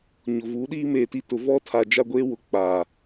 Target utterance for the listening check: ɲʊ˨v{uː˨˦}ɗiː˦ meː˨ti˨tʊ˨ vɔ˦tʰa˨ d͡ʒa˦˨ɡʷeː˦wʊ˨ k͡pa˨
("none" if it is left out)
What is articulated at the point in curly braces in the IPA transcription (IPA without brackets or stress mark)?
uː˨˦